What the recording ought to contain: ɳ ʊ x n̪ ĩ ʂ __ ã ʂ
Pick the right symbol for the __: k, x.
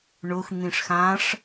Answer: x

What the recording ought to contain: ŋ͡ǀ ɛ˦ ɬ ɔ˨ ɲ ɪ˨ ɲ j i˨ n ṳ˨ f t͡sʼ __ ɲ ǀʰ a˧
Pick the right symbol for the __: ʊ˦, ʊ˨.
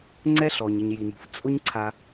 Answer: ʊ˦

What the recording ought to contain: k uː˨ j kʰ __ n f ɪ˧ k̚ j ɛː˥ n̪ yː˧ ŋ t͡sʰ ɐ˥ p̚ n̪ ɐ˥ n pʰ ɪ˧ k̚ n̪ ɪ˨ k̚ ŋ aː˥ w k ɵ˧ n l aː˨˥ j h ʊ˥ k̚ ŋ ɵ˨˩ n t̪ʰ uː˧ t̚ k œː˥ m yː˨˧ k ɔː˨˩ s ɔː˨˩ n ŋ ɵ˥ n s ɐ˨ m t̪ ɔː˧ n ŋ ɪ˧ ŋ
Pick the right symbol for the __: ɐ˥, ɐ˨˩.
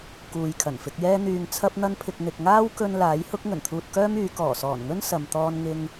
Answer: ɐ˨˩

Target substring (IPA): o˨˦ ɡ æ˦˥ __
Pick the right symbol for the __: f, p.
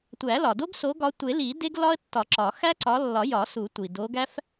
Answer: f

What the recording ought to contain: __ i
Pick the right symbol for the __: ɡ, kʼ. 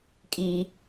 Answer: kʼ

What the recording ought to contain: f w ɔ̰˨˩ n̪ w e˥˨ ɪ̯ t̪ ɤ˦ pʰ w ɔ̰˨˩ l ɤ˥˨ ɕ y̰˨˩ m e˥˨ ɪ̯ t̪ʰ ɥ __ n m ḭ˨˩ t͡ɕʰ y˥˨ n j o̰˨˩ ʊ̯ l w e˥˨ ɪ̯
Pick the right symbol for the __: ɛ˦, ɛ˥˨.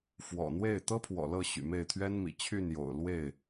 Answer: ɛ˦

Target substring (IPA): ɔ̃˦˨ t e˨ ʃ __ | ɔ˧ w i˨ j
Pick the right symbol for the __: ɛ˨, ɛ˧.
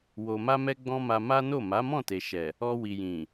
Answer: ɛ˨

